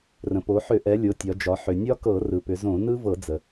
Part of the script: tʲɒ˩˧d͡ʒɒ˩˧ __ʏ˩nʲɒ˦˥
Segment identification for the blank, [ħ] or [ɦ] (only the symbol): ħ